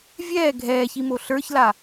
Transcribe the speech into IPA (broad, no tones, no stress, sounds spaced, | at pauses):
vʲ ɛː ɡʱ ɛː ç i m o ɬ ə˞ ç l a